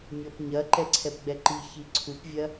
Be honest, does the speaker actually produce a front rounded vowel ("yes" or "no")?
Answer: no